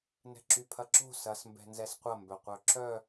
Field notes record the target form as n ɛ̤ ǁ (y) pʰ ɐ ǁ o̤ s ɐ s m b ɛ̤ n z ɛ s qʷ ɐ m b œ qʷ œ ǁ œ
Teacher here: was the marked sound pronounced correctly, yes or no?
yes